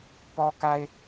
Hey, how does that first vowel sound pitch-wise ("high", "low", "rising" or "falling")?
high